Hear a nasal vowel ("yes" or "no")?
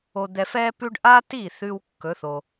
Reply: no